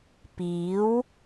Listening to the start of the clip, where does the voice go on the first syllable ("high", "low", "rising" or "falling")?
rising